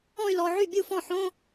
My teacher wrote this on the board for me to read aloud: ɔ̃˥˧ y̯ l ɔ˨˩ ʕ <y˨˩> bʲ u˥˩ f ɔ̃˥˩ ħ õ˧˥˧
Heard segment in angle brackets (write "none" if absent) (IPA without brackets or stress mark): y˥˩